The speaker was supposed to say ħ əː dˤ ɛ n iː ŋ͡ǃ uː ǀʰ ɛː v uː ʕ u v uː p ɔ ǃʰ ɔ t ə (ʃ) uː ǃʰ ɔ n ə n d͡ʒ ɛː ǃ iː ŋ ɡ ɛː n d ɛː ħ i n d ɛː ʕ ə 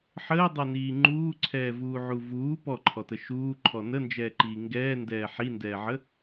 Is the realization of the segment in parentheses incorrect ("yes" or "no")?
no